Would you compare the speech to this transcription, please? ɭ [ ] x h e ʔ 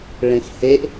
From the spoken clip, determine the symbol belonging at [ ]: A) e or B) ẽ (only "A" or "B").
B